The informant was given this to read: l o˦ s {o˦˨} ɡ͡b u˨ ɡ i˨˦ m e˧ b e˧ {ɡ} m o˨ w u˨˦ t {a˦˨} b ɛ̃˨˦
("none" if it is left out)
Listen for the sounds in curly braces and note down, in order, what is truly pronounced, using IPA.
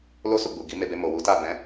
u˦˨, none, a˦˨

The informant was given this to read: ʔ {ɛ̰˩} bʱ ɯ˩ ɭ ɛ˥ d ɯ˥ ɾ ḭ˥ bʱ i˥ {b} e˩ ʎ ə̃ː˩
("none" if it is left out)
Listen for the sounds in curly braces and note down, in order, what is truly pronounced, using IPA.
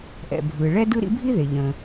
ɛ̰˩, ð

